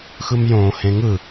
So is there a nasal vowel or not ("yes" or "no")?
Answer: yes